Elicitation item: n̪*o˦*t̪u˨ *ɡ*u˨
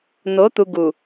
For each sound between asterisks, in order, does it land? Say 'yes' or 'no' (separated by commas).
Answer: no, yes